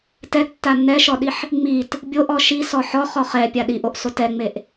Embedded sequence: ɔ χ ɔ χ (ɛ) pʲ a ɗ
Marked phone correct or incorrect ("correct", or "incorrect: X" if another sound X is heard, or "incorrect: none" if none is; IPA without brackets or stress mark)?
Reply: correct